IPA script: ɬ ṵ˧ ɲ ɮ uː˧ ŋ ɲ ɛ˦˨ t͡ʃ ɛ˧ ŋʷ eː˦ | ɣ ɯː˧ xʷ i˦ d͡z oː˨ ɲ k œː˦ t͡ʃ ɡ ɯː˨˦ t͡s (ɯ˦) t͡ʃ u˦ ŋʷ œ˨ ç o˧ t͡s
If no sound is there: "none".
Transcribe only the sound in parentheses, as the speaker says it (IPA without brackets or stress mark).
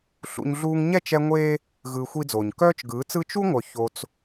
ɯ˦